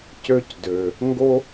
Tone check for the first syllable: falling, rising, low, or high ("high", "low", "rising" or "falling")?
high